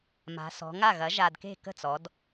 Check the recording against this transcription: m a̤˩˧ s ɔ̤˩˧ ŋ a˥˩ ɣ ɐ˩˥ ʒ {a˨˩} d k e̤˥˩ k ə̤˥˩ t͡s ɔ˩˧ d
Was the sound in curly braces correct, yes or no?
yes